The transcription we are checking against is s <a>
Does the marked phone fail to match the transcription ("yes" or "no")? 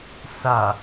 no